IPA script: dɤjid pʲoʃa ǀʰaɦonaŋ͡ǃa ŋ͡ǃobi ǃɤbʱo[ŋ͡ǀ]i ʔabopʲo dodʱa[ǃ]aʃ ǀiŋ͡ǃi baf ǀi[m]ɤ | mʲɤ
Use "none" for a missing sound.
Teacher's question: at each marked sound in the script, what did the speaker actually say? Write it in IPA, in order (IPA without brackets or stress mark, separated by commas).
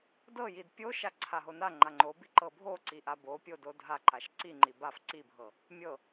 ǀ, ǃ, bʱ